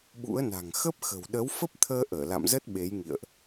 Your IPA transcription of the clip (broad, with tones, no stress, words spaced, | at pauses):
ɓṵ˧˥ə̯na̤˨˩ŋ xə˦˥p̚xə̤˨˩w ɗə˨˦wfə˦˥p̚t̪ʰəː˧ ʔəː˧˩la̰˧˨mzə˦˥t̚ ɓe˨˦jŋḭ˧˨ə̯ʔ